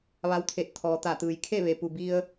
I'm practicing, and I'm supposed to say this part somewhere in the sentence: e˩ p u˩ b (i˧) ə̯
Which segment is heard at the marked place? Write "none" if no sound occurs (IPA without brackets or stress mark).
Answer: i˧